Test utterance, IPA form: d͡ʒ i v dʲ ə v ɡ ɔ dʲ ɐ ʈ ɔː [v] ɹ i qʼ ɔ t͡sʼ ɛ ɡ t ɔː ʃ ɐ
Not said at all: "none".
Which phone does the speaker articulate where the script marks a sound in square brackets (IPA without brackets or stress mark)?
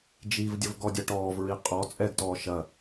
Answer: v